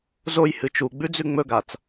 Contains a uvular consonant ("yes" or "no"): no